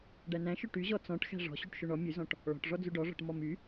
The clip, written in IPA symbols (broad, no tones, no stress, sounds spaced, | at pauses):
ɖ æ n æ̃ ʃ ɵ ʈ y ʑ ɔ t͡s ɔ̃ ʈ x æ̤ ʐ ɔ̤ ɕ y ʈ ʃ ø ɳ ɔ mʲ ʉ z ɔ̃ ʈ | ɭ ɔ̤ ʈ ʐ ɔ d͡z ʉ ɖ ɔ ʐ ɔ̤ ʈ m ɔ m y